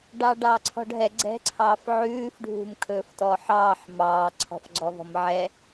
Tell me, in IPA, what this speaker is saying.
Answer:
ɖ ɑː ɖ ɑː ǀʰ ɔ̤ ɖ ɦ ɛ ɡ͡ǀ ɛ̤ ǀʰ ɑː f ʕ ʉː f ɖʱ ṳ m kʰ ɵː f t ɔ ħ ɑː ħ m ɑː ǀʰ ɔ̤ f ɡ͡ǀ ɔ v ɔ̤ m ʕ ɛ

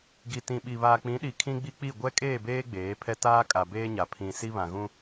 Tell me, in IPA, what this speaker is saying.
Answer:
ɡ i˨ t ĩ˨ ɓ i˨ β aː˨ k͡p ĩ˨˦ ɗ i˨ kʰ ĩ˦ ɡ͡b i˦ k͡p i˦˨ ɡʷ ɛ˦ kʼ eː˦˨ b eː˦ ɡ͡b eː˨˦ pʰ ɛ˦ t aː˦ kʼ a˨ b eː˦ ɲ a˨ pʰ ĩ˨ s i˦ β ã˨ ɣ ũ˦

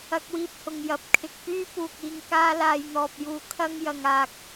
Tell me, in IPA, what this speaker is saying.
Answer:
ɐ˥ k̚ w iː˥ p̚ h ʊ˧ ŋ j ɐ˨˥ p̚ kʰ ɪ˨ k̚ p yː˥ p uː˨ k̚ iː˧ ŋ k aː˥ l aː˧ j n̪ ɔː˨ p̚ j uː˧ kʰ ɐ˥ ŋ j ɐ˨ ŋ aː˨ k̚

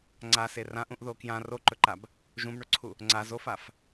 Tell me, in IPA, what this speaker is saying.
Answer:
ŋ͡ǀ a s e r ã ʔ ũ ʔ ð o k j ã r o ǃ ɵ ǃ a b | ʒ ũ b ɳ ɵ ǀʰ u | ŋ͡ǀ a z o f a f

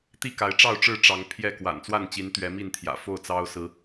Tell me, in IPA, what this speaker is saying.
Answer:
t̪ i˥˨ k a˨˦ ɪ̯ ʈ͡ʂ ɑ˥˨ ʊ̯ ʈ͡ʂ ɻ̩˥˨ ʈ͡ʂ ɑ˨˦ ŋ pʰ j ɛ˥˨ k w a̰˨˩ n t͡s w a˥˨ n t͡ɕ i˨˦ n t̪ ɥ ɛ˨˦ m i˥˨ n t̪ʰ j ä̰˨˩ f o˥˨ ʊ̯ t͡s ɑ˦ ʊ̯ s ɹ̩˨˦

